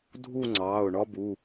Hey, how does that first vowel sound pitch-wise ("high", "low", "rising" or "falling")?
falling